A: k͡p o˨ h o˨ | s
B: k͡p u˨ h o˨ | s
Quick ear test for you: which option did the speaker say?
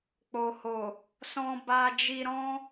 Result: A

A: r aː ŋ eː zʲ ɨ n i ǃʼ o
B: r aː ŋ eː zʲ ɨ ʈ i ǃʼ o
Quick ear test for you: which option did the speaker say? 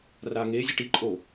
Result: B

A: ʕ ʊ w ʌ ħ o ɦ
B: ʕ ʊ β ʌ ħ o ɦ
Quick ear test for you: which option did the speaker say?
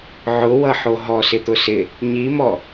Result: A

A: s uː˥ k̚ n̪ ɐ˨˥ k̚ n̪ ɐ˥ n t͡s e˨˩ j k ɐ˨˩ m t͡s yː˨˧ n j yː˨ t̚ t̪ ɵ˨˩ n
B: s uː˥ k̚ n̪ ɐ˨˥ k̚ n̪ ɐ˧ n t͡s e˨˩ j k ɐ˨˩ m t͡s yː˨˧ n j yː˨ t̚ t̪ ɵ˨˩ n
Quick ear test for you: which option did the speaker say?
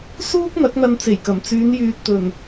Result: B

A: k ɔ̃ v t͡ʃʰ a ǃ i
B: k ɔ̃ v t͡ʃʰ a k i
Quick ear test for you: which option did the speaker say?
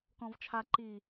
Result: A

